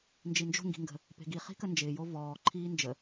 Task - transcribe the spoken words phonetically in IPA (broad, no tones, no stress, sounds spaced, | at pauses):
n d͡ʒ i n d͡ʒ o̤ ŋ ɡ i̤ ŋ ɡ ə̤ | p e̤ ɡ i χ i̤ k ə n d͡ʒ ɪː j o v ɔː ǃʰ iː n d͡ʒ ə